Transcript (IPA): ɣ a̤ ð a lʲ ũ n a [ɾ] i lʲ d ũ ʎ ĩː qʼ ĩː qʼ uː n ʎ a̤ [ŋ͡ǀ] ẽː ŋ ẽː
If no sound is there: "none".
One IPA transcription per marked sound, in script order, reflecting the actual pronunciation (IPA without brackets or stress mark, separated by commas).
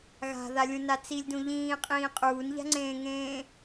t͡s, ŋ͡ǀ